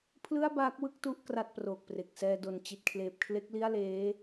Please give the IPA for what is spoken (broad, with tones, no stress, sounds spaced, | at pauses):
pʰ l ɯ˥˩ a̯ b aː˦˥ k̚ w ɯ˥˩ k̚ t u˥˩ ʔ k r a˥˩ t̚ p r oː˨˩ k̚ p r e˨˩ k̚ s ɛː˧ d o˨˩ n t͡ɕ i˨˩ t̚ kʰ l eː˨˩ p̚ kʰ l e˦˥ k̚ l i˥˩ a̯ l eː˦˥